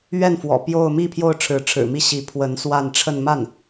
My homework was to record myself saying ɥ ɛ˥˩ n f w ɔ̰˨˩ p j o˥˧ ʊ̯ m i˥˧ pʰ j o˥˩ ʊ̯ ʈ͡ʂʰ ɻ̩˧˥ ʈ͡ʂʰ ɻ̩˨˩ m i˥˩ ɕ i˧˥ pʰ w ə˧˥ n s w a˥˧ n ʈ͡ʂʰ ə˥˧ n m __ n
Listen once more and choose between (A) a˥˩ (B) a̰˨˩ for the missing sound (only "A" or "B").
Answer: A